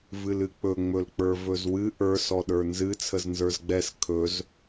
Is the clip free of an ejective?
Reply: yes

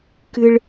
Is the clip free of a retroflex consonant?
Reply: no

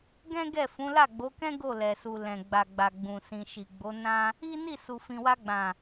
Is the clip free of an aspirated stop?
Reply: yes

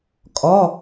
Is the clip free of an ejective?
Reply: no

